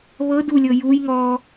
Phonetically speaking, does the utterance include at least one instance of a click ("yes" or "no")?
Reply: no